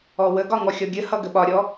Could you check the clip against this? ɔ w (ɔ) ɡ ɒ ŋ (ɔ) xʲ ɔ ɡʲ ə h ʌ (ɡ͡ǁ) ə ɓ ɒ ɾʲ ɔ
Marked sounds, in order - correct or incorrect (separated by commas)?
incorrect, correct, incorrect